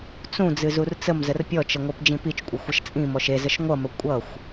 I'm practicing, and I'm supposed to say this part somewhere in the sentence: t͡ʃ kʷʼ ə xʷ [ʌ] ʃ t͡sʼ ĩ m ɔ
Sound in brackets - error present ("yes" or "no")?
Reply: no